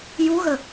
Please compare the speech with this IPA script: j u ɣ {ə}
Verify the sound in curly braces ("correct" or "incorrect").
correct